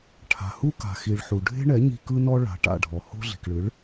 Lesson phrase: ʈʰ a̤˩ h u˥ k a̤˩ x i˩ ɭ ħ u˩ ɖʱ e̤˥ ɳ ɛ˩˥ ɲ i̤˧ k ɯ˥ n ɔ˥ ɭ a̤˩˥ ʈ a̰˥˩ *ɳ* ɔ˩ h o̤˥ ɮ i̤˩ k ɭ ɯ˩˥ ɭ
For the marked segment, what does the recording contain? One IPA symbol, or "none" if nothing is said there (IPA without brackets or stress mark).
ɖʱ